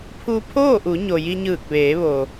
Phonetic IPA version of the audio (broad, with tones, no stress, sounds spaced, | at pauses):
pʰ u˧ pʰ oː˥˨ ʔ u˩˧ ɲ o˩ j i˧ ɲ ɯː˧˩ k̚ ʋ eː˩˧ ʋ o˩